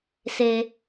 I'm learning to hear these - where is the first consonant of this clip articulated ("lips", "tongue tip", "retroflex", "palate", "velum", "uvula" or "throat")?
tongue tip